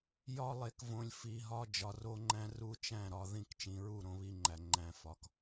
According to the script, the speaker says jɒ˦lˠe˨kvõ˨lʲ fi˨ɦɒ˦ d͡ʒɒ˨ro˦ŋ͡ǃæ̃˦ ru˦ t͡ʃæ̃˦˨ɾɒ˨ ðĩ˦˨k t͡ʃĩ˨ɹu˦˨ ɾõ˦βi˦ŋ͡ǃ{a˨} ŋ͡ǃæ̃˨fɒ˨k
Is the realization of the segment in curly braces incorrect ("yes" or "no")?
yes